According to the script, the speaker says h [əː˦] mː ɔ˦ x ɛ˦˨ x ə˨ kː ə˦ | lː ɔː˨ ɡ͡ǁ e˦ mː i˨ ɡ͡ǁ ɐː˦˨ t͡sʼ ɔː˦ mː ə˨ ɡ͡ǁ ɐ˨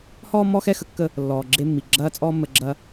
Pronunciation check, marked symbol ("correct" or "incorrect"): incorrect